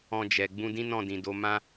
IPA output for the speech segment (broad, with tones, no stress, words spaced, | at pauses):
ɔ̃˧d͡ʒɛ˨ ɡ͡bũ˧dĩ˦ nɔ̃˦˨dĩ˨do˨˦ mã˦